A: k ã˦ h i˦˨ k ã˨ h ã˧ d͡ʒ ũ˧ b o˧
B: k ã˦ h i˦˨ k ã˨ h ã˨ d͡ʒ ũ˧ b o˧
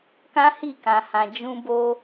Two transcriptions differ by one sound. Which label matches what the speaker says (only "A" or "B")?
B